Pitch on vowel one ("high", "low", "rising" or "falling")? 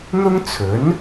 high